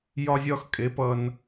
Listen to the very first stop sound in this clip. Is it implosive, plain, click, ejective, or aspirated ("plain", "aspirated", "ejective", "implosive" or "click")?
ejective